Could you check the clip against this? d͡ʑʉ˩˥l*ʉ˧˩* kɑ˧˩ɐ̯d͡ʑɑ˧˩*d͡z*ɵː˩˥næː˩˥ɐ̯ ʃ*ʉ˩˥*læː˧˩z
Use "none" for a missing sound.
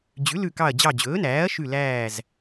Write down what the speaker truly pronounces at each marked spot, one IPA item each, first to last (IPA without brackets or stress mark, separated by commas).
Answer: ʉ˧˩, d͡ʑ, ʉ˧˩